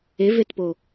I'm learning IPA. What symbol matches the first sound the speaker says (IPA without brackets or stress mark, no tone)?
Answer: e